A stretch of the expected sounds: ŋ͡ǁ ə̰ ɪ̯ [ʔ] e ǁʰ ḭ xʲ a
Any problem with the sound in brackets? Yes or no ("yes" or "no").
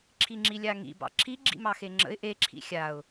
no